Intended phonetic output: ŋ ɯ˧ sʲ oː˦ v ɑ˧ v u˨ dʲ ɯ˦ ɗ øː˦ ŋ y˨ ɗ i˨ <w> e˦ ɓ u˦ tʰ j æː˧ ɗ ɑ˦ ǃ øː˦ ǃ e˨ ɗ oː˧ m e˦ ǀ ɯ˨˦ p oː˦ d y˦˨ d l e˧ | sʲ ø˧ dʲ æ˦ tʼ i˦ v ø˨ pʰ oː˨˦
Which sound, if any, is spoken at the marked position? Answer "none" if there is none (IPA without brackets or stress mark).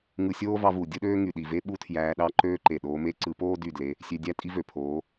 v